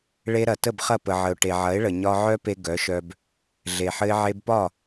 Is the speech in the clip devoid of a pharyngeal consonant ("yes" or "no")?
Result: no